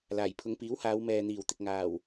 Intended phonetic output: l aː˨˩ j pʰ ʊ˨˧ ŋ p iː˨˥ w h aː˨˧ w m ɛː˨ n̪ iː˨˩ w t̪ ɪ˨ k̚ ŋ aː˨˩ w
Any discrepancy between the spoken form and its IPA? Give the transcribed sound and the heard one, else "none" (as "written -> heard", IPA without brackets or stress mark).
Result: none